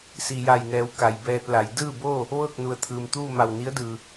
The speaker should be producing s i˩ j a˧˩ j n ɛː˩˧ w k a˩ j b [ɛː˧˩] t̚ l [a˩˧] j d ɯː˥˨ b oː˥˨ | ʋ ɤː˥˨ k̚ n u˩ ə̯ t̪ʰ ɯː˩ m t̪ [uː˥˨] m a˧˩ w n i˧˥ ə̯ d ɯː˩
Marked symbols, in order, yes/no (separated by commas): no, yes, yes